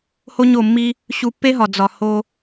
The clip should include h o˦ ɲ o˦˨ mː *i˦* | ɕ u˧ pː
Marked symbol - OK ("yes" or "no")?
yes